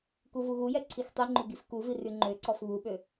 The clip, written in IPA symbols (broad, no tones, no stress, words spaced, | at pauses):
kuvuɣujɛ ǀʰixtˤiŋ͡ǃu ɡifkuvi ryŋ͡ǃøǀɔf βuɓø